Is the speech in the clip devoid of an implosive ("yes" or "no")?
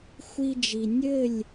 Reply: yes